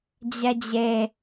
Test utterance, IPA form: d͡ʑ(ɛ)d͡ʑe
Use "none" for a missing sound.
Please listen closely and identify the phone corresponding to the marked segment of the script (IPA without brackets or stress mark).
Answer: ɛ